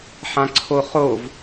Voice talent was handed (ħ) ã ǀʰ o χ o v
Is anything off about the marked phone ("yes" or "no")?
no